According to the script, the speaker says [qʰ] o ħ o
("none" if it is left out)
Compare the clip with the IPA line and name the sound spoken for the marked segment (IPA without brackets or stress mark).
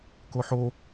k